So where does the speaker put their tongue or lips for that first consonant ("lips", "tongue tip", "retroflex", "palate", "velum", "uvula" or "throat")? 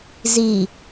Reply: tongue tip